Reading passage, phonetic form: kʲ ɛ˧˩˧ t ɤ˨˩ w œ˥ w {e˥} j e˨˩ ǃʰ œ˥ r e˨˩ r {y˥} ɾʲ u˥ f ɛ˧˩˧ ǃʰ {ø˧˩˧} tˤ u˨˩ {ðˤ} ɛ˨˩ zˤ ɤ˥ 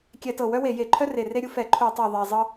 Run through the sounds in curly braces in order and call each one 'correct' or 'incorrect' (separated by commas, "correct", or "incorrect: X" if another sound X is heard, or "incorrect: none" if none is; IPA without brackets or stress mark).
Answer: incorrect: e˧˩˧, incorrect: e˥, incorrect: u˧˩˧, correct